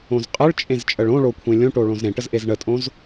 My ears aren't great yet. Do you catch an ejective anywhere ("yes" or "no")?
yes